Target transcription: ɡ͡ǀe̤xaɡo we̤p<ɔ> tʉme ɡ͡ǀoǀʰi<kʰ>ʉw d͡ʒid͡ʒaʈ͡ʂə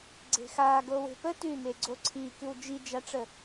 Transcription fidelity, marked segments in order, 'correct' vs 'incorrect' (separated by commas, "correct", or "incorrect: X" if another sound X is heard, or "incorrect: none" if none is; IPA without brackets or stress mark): incorrect: ə, incorrect: k